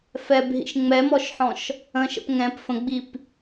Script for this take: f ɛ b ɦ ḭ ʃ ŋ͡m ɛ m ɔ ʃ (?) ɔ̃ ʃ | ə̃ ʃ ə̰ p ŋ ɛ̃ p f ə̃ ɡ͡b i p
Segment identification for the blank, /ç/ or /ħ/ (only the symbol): ħ